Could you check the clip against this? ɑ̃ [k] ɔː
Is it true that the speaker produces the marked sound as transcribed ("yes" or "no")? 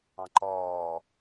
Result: no